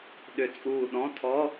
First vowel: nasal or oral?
oral